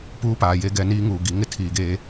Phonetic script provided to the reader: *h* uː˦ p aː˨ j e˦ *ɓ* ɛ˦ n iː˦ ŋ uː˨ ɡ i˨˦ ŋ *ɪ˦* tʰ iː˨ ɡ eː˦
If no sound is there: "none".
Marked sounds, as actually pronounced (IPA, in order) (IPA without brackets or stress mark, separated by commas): p, ɡ, ɪ˦